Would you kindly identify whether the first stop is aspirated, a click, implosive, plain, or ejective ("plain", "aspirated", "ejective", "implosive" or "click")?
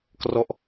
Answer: plain